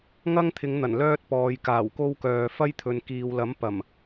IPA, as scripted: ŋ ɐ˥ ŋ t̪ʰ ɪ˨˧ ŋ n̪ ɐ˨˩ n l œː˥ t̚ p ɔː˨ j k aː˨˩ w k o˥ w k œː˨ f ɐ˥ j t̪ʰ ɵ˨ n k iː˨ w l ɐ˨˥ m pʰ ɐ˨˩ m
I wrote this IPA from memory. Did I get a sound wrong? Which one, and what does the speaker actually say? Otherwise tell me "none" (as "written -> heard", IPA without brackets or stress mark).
pʰ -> p